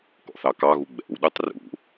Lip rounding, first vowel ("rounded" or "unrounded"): rounded